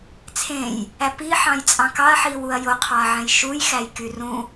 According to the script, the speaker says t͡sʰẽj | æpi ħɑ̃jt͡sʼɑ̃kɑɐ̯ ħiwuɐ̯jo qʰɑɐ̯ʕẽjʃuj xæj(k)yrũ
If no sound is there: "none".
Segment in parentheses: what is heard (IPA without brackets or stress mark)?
k